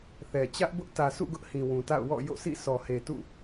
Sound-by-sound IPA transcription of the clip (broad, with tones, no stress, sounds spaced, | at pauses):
θ ɛ˨ t͡ɕ ä˦ ʔ b ʊ˦ ʔ t ä˨ s ṵ˦˨ ɡ ʊ˦ ʔ h ĩ˨ w ũ˨ t a̰˦˨ ʊ̯ w ɔ̰˦˨ j o̰˦˨ s ḭ˦˨ sʰ ɔ˨ h e˨ t ṵ˦˨